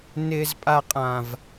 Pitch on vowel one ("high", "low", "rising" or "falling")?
low